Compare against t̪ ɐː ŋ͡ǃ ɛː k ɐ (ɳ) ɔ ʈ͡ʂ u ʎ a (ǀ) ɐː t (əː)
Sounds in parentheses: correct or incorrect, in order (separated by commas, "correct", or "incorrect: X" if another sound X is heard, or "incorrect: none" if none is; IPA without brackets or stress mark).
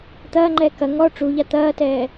incorrect: ŋ, incorrect: t̪, incorrect: ɛː